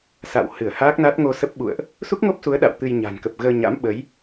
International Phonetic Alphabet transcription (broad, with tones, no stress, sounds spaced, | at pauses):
s a̰˧˨ w h ɨ˧˩ ə̯ h aː˦˥ k̚ n a˦˥ t̚ ŋ o˧ s ə˦˥ p̚ ɓ ṵ˧˨ ə̯ ʔ | s u˦˥ k̚ ŋ o˦˥ p̚ s u˨˦ ə̯ ɗ a̰˧˨ w t̪ ɨ˧ j ɲ a̤˨˩ n k ə˨˩ p̚ ɣ əː˧ ɲ a̰˧˥ m ɓ ə˨˦ j